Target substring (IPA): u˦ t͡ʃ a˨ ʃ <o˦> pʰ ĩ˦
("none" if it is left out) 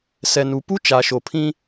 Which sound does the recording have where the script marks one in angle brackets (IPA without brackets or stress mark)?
o˨